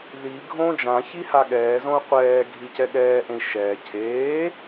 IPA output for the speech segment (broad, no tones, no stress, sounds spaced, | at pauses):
ð i ɡʱ õː d͡ʒ ã ç i h a ɠ ɛː z õ u̯ qʷ ɛː ɡʱ i c ɛ ɠ ɛː ʔ ẽ i̯ ʃ ɛː cʰ eː